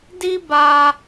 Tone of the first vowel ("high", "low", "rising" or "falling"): high